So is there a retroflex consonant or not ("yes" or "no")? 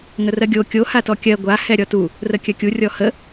no